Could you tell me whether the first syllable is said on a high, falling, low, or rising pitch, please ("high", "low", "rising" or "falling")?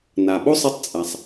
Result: low